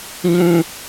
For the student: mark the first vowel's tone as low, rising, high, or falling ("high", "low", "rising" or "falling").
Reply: high